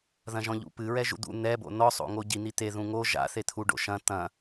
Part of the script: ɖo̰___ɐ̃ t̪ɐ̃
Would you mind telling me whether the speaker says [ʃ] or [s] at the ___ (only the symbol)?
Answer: ʃ